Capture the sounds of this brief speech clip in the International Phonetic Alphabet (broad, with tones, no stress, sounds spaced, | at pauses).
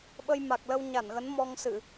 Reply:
ɓ ə˧ j m a˨˩ k̚ l ə˧ w ɲ a˧˩ n ɣ ə˨˦ n m ɔ˧ ŋ s ɨ˧˩˨